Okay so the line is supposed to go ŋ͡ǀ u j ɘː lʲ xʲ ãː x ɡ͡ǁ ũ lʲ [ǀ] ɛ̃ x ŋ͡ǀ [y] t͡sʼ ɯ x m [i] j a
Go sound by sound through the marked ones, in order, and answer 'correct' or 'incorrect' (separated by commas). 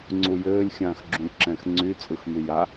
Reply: incorrect, correct, incorrect